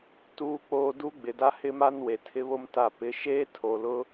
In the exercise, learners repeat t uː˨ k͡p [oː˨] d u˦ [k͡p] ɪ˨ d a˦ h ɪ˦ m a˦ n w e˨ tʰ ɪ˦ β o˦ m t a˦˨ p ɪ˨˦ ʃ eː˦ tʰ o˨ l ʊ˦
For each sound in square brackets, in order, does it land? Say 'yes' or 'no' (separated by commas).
yes, no